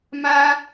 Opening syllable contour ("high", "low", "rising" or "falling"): high